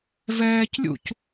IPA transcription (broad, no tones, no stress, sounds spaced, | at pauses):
v ɛː c lʲ ṵ c